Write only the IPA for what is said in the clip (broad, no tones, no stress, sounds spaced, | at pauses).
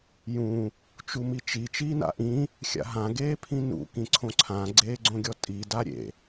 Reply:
j ũ | t͡ʃ u m i t͡ʃ i t͡ʃ iː n a̰ ʔ ĩ | xʲ a̰ ɦ ã ɡ eː pʰ ĩ n ṵ k ĩ ǀʰ õ ǀʰ ã ɡ͡ǀ eː ɡ͡ǀ õ ɡʲ ɔ tʼ i d a ɾʲ ḛ